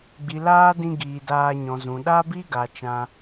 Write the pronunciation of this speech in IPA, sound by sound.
ɡ͡bi˨laː˦dĩ˧ ɡiː˨daː˧ɲɔ̃˨zũ˨ ɗa˦bi˦ɡa˨ t͡ʃã˧

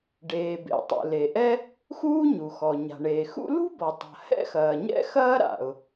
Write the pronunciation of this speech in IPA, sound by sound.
ɖeː˩bḛ˩ tˤṵ˩le˩ʔɛ˥ | xuː˥ɲu˩xɔ˩ ɲa̤˩ɳeː˩xṵ˥ lṳ˥bɔ˩tˤa̤˩ hɛ̰˥xɐː˩ɲɛ̰˥ xɐː˥ɾa̰˩ʊ̯

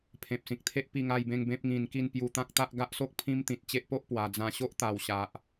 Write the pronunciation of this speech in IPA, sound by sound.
pʰẽ˨p̚sĩ˨k̚t̪ʰe˦ʔ pi˧ŋa˧jbẽ˧ŋ bẽ˦p̚ŋĩ˧nki˥˧n pju˧t̪ã˦k̚t̪a˦ʔ ɡa˦ʔso˦k̚ pʰĩ˦mt̪ĩ˨t̚ t͡ɕe˦ʔpo˦ʔ pwa˧d͡zã˥˧ ɕo˦ʔt̪a˨˩wɕa˨ʔ

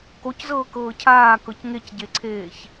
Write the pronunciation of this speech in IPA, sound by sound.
koczɤː kɤːcʰaː kɤcŋecɟeǀʰeːç

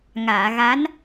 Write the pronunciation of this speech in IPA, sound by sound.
ŋaː˨˩˨ɣa˧˥n

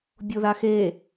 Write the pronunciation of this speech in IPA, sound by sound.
bʲoðaxe

